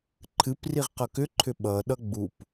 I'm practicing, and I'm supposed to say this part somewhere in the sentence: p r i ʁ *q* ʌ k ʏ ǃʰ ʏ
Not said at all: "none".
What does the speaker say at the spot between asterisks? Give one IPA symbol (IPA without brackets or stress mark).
q